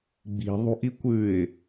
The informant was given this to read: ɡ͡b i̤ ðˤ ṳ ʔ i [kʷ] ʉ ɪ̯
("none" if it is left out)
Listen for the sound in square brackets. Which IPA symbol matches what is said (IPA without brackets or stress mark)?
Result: kʷ